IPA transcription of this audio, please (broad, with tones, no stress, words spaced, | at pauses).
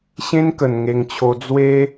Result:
ɕẽ˦nkə˧n ŋe˧ŋt͡ɕʰo˧ d͡zwe˦